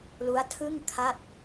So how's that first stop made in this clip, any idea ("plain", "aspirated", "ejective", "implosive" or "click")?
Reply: aspirated